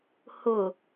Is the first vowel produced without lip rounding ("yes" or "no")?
no